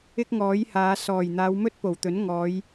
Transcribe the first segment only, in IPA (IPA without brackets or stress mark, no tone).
ɪ